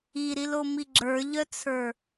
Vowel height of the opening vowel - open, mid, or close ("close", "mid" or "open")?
close